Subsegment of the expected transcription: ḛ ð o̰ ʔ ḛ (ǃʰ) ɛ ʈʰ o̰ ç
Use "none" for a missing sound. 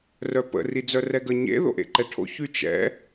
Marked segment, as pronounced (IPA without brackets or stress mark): ǃ